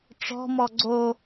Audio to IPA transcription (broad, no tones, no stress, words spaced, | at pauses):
ʈ͡ʂɔ̤mɔ ɡ͡ǀo